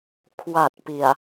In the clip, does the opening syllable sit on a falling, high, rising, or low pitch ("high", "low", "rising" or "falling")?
low